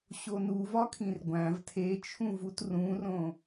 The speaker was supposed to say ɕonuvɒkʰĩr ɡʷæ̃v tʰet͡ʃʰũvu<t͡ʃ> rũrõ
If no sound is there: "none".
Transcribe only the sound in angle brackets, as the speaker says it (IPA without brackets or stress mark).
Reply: t